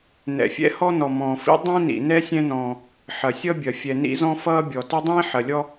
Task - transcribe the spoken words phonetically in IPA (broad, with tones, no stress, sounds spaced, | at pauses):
n ɛ̰˩ fʲ ɛ̰˥ h ɔ˥ n ɔ˩ m ɔ̃ː˩ f ḭ˥ dˤ ĩ˥ n ḭ˩ n ɛ˥ sʲ ɛ̃˥ n ɔ̃ː˩ | ħ ɐ˩ sʲ ʌ˥ bʲ ɐ˩ fʲ ɛ˩ n ḭ˥ z ɔ̃˥ f ʌː˥ bʲ ɔ˩ t ɐ˥ dˤ ĩː˥ ħ ɐ˩ lʲ ɔ˥